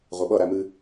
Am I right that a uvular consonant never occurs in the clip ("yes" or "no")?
no